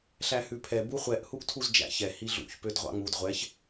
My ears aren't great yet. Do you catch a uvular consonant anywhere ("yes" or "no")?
yes